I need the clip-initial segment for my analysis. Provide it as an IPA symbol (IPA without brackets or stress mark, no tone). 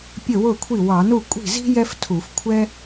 pʲ